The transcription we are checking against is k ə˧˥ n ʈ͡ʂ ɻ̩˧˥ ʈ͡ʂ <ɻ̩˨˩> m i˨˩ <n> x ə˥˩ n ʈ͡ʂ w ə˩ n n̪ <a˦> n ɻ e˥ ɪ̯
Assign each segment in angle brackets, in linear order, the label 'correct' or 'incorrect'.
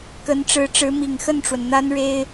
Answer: incorrect, incorrect, incorrect

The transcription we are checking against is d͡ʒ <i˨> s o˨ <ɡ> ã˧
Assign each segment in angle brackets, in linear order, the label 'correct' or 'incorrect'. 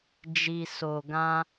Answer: correct, correct

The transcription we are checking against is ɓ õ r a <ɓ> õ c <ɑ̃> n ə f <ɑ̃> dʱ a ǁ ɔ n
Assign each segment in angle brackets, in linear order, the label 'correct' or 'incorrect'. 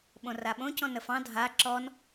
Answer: correct, incorrect, correct

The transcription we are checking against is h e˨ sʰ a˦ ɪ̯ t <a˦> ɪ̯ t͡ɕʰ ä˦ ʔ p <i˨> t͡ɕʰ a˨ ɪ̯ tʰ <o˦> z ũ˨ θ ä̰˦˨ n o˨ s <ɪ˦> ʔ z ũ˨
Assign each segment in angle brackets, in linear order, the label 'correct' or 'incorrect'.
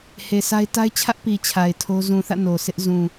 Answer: correct, correct, correct, correct

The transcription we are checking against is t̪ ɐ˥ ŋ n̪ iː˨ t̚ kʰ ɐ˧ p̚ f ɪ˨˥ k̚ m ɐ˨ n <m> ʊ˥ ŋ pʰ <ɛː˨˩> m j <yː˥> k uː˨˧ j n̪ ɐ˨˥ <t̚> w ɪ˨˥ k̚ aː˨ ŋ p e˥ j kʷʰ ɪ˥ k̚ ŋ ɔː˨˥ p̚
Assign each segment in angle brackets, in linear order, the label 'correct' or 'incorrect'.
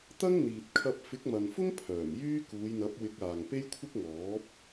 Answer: incorrect, incorrect, correct, incorrect

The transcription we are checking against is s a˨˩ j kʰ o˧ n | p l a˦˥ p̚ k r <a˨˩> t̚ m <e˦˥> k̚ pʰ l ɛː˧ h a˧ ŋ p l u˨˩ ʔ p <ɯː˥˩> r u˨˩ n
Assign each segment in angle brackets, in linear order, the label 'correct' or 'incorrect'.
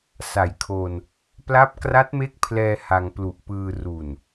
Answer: incorrect, correct, incorrect

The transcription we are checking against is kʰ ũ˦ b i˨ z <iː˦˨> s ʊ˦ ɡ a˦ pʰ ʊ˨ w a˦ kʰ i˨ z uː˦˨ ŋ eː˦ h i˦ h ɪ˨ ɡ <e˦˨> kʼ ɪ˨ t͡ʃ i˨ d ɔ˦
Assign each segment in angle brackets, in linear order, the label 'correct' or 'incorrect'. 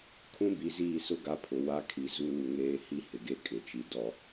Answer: correct, correct

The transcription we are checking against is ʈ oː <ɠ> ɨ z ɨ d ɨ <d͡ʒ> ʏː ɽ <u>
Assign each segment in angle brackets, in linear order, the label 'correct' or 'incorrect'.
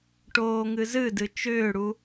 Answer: incorrect, incorrect, correct

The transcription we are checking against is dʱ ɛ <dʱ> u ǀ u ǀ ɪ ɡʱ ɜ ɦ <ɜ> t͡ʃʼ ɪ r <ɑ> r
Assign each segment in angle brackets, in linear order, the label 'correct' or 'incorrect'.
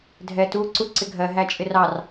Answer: incorrect, incorrect, correct

